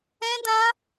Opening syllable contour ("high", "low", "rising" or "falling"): high